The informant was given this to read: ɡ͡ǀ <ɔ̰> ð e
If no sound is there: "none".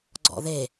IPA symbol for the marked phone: ɔ̰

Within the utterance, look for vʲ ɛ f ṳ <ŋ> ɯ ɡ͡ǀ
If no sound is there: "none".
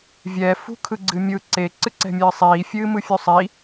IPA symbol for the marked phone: kʰ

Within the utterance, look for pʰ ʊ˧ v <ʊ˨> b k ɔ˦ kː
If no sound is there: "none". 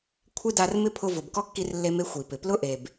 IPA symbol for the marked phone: ʊ˨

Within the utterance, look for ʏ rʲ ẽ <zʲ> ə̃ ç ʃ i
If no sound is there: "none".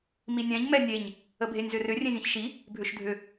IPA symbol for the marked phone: zʲ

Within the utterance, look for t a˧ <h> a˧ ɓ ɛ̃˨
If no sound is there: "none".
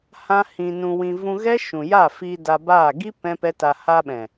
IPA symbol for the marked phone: h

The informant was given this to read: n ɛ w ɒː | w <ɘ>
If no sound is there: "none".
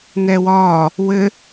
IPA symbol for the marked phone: ɘ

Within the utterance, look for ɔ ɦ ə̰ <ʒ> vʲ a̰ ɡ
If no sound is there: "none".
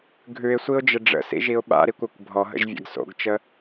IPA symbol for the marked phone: ʒ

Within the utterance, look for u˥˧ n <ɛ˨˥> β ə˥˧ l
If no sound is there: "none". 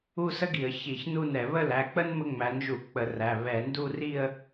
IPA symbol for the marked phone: ɛ˧˩˧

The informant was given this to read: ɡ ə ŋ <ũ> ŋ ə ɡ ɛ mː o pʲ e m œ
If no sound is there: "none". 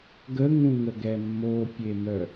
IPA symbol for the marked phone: ũ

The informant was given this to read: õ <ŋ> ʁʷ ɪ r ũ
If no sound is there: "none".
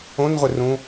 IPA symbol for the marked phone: n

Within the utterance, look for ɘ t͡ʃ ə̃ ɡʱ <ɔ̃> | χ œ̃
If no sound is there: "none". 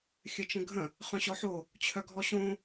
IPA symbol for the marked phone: ə̃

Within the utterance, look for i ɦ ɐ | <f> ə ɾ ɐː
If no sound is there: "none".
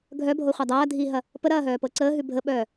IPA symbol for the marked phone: p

